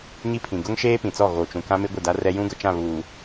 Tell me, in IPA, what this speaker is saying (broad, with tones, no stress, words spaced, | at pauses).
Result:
ɲi˦pʰĩ˨ ɡʊ˦ŋ ʃeː˦pĩ˨t͡sɔ˦˨ ɣo˨t͡ʃũ˨kã˦mɪ˦ ɡʷɪ˦˨da˦rɛ˦ jũ˦ɡʊ˨t͡ʃã˦˨βuː˨